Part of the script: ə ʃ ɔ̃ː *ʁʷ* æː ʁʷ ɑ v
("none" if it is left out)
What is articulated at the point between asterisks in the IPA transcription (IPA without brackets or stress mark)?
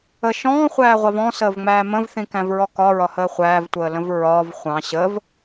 χʷ